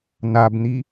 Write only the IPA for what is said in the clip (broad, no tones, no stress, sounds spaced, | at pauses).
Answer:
n a b n̪ i